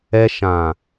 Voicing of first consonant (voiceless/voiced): voiceless